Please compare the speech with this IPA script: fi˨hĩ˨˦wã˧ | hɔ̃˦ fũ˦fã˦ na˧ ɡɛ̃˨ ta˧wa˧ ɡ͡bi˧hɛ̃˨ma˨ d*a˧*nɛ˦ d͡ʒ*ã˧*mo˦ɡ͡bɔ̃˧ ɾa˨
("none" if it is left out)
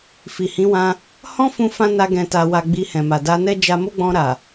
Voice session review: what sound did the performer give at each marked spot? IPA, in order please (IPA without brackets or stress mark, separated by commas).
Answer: a˧, a˧